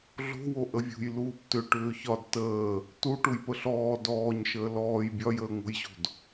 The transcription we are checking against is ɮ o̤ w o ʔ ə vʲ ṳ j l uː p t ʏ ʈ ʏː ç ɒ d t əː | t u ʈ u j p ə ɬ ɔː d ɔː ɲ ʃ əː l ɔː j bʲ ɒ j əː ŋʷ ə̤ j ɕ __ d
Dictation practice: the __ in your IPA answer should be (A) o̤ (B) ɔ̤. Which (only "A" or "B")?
A